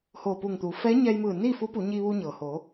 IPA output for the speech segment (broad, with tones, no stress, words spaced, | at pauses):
hoː˧˩puː˧˩ŋt̪uː˩˧ fɛː˧˥ɲɛː˧jmɯː˧˩niː˥˨ fu˧˥pu˩˧ɲiː˧ ʋu˧ɲɤː˩hoː˩˧